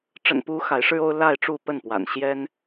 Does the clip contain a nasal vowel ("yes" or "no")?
no